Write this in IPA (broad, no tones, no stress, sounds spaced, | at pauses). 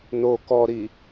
n o k ɔ ɾ i